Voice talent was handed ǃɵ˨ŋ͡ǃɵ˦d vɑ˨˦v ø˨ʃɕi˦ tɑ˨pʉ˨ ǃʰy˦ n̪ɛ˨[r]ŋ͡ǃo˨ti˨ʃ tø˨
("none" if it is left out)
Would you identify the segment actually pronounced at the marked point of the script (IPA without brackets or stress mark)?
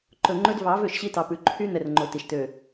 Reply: r